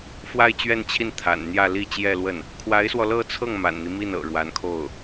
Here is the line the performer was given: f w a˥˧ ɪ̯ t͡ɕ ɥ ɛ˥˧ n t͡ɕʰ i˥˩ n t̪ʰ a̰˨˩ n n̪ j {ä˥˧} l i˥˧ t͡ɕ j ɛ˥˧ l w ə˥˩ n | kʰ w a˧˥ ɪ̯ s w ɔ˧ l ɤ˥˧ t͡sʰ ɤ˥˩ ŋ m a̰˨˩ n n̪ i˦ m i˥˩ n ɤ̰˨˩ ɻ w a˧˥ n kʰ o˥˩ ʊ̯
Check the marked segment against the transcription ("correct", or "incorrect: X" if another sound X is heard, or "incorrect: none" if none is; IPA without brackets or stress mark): correct